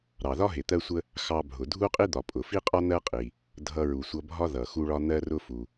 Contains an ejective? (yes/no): yes